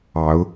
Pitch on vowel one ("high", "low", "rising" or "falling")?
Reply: rising